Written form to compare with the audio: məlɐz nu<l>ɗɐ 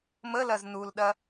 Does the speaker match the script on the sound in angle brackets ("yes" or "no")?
yes